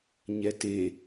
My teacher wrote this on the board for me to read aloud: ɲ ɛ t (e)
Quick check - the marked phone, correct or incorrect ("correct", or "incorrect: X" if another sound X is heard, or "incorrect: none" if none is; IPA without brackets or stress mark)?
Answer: correct